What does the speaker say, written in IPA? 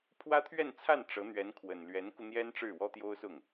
pʰwä˥t̪ʰɥɛ˥˧nt͡sʰa˥˩n ʈ͡ʂɤ˧˥n̪ɥɛ˧˥nkʰwə˨˩n lɥɛ˧˥nku˧n̪jɛ˥n ʈ͡ʂɻ̩˥˩wɔ˥t̪jo˥ʊ̯sʊ˥˩ŋ

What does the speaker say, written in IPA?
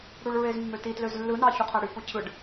ɽuɭɹezmːøti tløzlːɯ nɑçuqʰæɽy pucʰɯɖ

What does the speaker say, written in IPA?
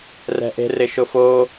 rɛ̤ʔe̤ rɪʃʊfo

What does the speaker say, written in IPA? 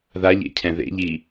ðaʎḛcʰɛ̃ ðḛʎi

